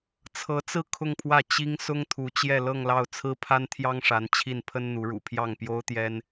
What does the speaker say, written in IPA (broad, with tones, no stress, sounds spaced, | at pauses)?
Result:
t͡sʰ ɤ˧˥ t͡s ɹ̩˥˧ kʰ ʊ˥˧ ŋ pʰ w ä˥˩ t͡ɕ i˥ ŋ s ʊ˥ ŋ t̪ʰ u˧˥ t͡ɕ j ɛ˥˧ l ɤ˥˧ ŋ l ɑ˥˩ ʊ̯ t͡sʰ ɹ̩˥ pʰ a˥ n t̪ʰ j ɑ˥ ŋ ʂ a˧˥ n t͡ɕʰ i˥˩ n pʰ ə˥ n n̪ u˧˥ ɻ ṵ˨˩ pʰ j ɑ˥˩ ŋ p j o˥ ʊ̯ t̪ j ɛ˥ n